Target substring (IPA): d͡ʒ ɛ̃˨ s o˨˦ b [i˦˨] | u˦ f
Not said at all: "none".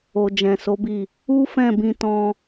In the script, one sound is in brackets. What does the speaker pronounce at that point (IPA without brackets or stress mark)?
i˦˨